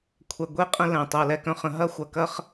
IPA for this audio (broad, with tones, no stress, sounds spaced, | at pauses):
kʷʰ ɛ˧ ɡʷ e˦ qʼ ə̃˦ l ɛ̃˧ tˤ ʊ˧ ɐ̯ l ɛ˦ k œ̃˦ χ ə̃˦ ɦ ɐ˦ xʷ ɐ˧ k ɐ˦ χ